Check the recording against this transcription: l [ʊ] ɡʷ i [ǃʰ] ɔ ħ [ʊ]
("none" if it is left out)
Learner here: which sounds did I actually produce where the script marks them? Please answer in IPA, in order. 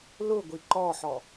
ʊ, ǃ, ɔ

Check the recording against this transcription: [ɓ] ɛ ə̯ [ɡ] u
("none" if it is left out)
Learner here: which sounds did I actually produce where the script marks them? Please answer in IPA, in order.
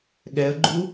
ɠ, ɡ͡ǃ

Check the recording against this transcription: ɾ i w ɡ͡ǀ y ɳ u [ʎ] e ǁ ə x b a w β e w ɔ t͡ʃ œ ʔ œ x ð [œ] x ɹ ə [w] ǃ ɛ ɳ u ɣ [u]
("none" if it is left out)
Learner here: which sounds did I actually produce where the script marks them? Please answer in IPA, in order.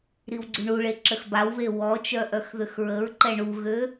ɭ, ø, ɹ, ø

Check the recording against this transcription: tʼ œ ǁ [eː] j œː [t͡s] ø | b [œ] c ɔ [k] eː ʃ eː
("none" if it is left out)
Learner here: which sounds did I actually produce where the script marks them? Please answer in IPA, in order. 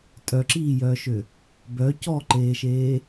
iː, ʃ, œ, ǃ

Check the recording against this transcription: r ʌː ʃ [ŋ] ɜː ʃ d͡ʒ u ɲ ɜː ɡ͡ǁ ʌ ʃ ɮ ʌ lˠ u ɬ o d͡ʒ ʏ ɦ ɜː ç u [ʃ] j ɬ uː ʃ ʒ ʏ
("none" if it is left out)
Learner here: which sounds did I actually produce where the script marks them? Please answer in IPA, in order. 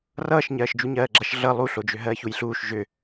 ɲ, none

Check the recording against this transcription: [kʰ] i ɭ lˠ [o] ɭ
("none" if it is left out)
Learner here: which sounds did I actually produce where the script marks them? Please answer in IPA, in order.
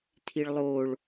tʰ, o

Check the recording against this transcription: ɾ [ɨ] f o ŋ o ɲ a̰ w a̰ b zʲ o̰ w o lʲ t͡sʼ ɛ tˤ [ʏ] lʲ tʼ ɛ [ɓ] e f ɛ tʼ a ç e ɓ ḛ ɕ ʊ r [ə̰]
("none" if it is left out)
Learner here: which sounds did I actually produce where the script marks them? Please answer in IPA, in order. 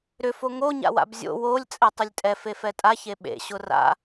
ʏ, ʏ, f, a̰

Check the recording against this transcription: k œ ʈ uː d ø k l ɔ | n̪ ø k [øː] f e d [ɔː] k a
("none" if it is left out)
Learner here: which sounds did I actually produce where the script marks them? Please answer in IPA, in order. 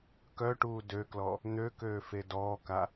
øː, ɔː

